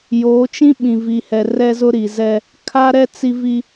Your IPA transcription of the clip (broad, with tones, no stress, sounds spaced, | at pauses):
j oː˨˦ t͡ʃ ĩ˦ ɓ ĩ˨ v i˨ h ɛ˨ r ɛ˦ z ʊ˦ ɾ i˨ z ɛ˦ | kʰ a˦ ɾ ɛ˦ t͡s i˦ v i˦